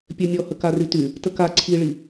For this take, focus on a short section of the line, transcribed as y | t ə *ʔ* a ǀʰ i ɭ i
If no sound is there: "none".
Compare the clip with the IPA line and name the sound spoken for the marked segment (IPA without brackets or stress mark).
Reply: k